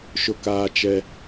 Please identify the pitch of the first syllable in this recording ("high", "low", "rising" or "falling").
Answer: high